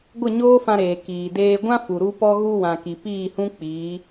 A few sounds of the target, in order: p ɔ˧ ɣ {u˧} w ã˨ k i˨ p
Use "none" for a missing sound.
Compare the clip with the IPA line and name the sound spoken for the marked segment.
u˧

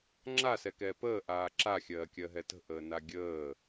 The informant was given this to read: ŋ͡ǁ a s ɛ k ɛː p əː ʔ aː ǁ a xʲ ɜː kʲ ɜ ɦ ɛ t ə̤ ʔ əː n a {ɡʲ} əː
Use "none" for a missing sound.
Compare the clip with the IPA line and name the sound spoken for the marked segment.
ɡʲ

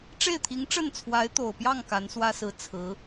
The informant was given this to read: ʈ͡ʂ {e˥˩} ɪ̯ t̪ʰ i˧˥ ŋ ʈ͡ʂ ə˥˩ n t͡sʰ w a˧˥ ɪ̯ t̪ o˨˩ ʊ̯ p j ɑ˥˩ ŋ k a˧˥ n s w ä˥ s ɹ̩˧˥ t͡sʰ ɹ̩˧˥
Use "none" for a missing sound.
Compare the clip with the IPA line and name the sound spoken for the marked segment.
e˥˩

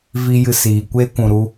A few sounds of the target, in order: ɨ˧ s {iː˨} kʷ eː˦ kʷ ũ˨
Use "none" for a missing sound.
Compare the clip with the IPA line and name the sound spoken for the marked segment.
iː˨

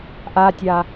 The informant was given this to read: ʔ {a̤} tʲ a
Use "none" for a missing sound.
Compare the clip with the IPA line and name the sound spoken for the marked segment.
a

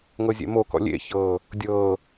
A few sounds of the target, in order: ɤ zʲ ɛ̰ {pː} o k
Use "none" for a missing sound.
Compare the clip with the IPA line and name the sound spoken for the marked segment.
m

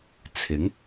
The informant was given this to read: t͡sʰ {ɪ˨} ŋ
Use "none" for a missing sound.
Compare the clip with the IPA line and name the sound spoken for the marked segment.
ɪ˨˥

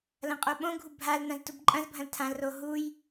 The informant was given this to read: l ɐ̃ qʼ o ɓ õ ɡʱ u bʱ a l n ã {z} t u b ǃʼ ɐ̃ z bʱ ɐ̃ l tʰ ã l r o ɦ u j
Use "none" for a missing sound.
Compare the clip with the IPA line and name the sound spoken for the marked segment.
z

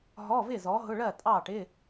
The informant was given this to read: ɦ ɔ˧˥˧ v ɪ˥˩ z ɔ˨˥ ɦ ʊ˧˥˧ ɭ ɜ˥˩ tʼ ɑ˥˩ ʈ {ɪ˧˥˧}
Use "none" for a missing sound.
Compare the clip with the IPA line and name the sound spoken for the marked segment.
ɪ˧˥˧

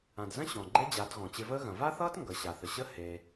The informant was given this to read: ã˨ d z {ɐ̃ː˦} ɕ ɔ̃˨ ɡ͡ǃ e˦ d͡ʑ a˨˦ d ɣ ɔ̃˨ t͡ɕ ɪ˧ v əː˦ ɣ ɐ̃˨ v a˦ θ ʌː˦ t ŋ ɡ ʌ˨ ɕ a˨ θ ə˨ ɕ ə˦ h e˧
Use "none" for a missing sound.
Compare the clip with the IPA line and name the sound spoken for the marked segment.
ɐ̃˦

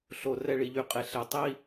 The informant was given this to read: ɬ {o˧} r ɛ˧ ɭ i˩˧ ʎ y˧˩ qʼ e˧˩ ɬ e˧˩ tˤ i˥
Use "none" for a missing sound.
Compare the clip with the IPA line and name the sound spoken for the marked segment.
o˧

